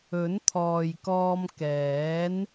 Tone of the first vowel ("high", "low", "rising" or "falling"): rising